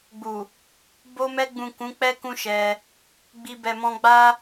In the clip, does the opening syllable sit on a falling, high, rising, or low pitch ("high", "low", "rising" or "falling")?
low